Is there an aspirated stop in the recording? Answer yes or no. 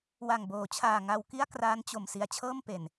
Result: yes